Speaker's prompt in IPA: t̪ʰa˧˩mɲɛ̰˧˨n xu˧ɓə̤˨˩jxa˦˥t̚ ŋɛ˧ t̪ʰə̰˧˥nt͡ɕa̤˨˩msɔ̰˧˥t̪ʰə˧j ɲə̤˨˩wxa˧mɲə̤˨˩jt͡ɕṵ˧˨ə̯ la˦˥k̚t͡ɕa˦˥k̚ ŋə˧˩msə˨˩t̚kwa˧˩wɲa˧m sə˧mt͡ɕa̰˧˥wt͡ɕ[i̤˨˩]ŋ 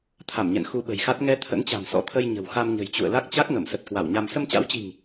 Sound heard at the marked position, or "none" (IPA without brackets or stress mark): i̤˨˩